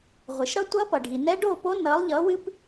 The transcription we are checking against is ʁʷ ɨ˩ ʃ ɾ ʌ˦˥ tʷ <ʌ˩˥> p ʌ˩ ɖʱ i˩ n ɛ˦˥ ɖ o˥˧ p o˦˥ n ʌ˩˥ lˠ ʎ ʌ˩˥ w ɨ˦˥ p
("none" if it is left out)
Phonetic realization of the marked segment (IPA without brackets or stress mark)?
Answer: ʌ˦˥